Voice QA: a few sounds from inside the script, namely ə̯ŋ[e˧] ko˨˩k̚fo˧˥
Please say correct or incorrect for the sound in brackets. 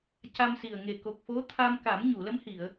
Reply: incorrect